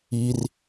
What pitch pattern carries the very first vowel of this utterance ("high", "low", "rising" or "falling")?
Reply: low